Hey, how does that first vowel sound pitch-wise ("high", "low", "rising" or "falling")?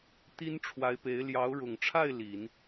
high